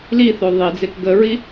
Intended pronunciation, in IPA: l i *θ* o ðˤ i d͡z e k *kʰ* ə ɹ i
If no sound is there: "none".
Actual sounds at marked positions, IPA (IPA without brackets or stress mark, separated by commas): θ, ɡ